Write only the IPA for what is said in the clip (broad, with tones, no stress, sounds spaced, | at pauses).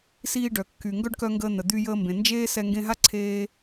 s iː˧ ɖ œ˩ kː y˩ ŋ ɡ œ˥ ɖ k œ˧ ŋ ɡ əː˧ n̪ ə˩ d̪ y˧ j əː˧ m b ẽ˩ n d͡ʒ eː˥ s ɛ˧ ŋ ɡ ẽ˧ ɦ a˥ ǀʰ eː˧